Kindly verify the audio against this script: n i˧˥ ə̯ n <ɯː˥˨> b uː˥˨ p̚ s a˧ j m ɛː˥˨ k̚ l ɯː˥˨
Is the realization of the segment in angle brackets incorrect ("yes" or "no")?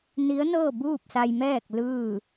yes